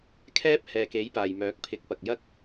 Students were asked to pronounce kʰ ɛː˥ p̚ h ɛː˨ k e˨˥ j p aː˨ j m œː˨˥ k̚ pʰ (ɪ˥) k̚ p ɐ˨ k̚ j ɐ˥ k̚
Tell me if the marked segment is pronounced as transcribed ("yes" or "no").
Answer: no